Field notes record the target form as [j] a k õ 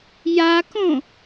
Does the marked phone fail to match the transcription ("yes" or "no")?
no